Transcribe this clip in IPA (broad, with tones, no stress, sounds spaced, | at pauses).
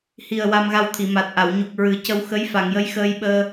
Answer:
h i˨˩ ə̯ w a˧ m ɣ a˧ w t̪ʰ i˨˩˨ m a˨˩ t̚ ʔ a˨˩˨ w ɲ u˨˩ k̚ ɹ ɨ˨˩˦ c ə˧ w x ə˧˥ j f a˨˩˨ ŋ j ə˧˥ j x əː˧ j ɓ əː˧